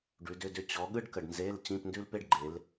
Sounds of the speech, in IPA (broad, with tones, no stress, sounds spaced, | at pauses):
ɖ ʉ˨˦ d ʏ˧˥˧ d ʏ˥ t͡ɕ ɔ˨˦ ɠ ɯ˥ ɖ k ə˨ ɖ n z e˧˥˧ l t͡ɕ ĩ˧˥˧ p n d ʉ˥ l p e˥ ɖ ɡ͡ǃ e˨˦ l